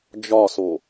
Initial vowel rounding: rounded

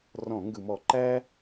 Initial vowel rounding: rounded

